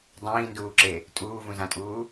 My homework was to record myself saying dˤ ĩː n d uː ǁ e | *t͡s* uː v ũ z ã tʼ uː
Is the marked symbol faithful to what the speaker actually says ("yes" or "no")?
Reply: no